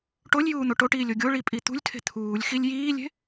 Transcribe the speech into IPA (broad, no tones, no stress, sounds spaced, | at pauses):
ʈ o lʲ j uː n̪ o ʈ o ʈ iː lʲ o ɡʲ o ɭ i pʼ i t̪ ṳ lʲ tʰ e̤ t̪ʰ uː lʲ x i lʲ j iː lʲ e̤